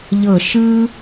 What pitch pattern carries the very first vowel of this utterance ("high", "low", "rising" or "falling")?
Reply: falling